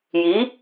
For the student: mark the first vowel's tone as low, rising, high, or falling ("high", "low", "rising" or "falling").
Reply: rising